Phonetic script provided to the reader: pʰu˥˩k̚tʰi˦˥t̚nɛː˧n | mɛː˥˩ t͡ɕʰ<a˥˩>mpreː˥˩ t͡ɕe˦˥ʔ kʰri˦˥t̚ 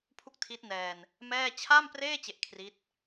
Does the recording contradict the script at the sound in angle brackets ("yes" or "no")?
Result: no